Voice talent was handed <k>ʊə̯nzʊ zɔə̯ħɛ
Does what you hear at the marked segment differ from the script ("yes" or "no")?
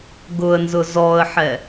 yes